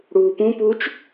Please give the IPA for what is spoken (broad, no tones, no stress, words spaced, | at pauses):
ɽuːpũpuːt͡ʃ